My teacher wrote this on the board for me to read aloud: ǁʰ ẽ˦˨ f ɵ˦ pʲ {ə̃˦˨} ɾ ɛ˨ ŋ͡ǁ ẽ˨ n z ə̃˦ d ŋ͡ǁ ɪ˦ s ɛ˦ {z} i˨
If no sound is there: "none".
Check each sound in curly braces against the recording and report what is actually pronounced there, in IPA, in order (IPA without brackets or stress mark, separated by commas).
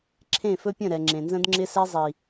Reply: ə̃˦˨, zˤ